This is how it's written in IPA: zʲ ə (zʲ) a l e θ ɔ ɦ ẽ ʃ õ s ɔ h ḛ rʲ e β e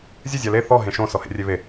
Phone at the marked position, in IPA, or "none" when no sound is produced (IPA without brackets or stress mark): zʲ